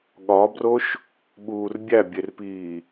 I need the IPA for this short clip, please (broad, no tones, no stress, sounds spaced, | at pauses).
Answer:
ɠ ɒ b r o ʃ | ɓ uː r bʲ æ bʲ e r p iː